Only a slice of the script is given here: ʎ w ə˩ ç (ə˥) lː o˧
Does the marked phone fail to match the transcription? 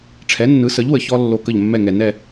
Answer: yes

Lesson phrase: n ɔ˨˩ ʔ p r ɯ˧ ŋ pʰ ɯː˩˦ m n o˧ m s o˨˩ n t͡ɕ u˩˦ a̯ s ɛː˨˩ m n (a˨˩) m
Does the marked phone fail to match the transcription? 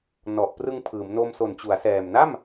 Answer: yes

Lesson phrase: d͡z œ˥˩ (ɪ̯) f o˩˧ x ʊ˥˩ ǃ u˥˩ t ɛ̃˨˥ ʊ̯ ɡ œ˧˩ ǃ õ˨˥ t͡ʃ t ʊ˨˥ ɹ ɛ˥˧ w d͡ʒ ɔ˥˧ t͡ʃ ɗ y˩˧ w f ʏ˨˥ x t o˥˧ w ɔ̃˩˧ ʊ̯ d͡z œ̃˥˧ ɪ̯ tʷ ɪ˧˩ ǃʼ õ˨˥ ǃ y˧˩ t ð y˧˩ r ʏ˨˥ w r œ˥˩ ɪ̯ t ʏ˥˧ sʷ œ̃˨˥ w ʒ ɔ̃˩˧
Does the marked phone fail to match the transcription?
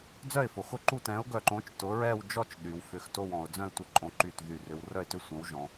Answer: no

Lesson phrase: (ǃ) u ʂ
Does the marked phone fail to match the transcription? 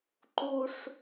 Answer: no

